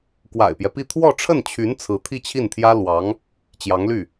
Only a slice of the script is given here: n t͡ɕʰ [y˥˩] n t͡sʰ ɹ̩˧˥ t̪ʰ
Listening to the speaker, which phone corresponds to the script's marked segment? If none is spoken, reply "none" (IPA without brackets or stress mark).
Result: y˧˥